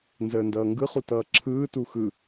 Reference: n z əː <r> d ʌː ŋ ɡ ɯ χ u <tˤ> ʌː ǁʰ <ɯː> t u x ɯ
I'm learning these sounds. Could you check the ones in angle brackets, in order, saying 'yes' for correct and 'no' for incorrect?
no, no, yes

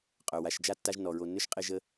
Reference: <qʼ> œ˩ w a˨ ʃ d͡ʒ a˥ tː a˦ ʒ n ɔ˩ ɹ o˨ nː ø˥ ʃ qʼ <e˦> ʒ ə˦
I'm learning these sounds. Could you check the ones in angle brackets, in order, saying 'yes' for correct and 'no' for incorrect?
yes, yes

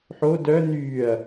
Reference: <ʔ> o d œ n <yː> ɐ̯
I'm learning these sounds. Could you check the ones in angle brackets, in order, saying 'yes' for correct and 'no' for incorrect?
no, yes

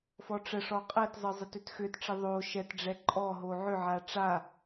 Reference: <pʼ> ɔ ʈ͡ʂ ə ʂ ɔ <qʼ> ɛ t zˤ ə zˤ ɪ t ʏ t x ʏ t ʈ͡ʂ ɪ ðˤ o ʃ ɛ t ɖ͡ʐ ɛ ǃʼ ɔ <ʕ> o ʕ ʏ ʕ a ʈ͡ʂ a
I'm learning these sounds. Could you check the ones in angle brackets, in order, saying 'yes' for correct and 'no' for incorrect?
no, yes, no

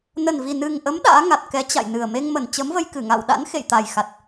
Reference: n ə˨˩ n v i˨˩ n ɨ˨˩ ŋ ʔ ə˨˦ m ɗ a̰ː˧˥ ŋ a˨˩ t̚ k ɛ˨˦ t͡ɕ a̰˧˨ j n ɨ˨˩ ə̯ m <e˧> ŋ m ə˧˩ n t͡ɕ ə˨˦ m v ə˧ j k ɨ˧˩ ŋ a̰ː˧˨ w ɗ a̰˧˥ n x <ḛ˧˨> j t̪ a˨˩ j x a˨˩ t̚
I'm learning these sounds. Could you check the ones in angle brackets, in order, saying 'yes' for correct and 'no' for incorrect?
yes, yes

